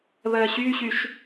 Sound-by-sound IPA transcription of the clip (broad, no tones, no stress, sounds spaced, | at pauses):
β ɜː ɕ yː ɕ y ʃ